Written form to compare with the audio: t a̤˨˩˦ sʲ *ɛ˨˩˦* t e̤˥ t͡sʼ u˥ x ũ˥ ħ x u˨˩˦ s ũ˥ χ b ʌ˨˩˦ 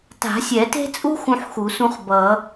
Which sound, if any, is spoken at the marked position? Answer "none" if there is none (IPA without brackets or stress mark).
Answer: ɛ˨˩˦